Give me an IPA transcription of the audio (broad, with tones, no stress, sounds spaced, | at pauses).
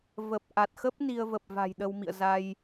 v ə˨˩ p̚ ʔ a˨˩ t̚ x ə˦˥ p̚ n i˧ ə̯ v ə˨˩ p̚ v a̤˨˩ j ɗ ə˧ w m ḭ˧˨ ə̯ z a˧ j